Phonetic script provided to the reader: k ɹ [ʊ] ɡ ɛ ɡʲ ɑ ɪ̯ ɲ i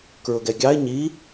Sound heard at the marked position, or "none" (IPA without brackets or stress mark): ʊ